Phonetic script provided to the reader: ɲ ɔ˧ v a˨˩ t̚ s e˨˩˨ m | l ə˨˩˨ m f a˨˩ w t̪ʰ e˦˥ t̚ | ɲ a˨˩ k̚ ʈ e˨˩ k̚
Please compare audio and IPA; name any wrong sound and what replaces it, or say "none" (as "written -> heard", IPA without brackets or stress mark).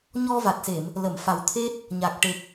none